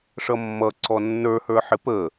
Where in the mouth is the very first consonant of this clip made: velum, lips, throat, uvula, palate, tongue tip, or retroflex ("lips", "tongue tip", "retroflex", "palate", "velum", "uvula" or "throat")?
retroflex